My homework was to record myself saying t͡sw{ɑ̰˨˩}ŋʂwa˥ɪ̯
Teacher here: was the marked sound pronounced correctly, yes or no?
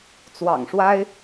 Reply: yes